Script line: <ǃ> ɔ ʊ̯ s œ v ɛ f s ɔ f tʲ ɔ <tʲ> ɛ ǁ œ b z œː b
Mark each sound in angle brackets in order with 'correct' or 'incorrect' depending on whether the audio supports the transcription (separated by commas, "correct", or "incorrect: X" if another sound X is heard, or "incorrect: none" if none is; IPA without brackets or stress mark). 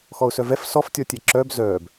incorrect: x, correct